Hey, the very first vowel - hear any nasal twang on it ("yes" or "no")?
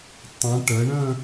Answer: yes